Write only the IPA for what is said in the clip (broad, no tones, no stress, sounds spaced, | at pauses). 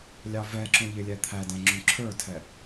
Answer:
lʲ ɑ v ɛ ǁ ũ ʎ ɪ lʲ ɛ t̪ʰ æ d æ̃ ŋ͡ǁ ũ ǁʰ ə˞ tʰ ɛ